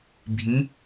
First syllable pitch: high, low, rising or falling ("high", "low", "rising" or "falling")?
rising